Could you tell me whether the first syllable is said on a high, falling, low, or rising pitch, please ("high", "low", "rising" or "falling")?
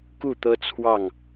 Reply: falling